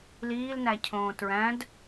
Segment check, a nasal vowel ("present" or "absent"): present